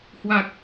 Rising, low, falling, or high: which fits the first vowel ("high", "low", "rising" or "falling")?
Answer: low